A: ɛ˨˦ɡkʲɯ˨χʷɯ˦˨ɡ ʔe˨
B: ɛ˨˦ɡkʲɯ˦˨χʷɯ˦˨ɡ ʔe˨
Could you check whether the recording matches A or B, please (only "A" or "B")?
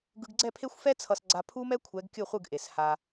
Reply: B